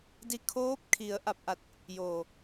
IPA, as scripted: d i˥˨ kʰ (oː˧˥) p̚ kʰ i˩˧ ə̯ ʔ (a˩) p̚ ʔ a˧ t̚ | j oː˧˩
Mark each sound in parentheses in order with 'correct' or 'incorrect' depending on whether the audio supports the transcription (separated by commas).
correct, incorrect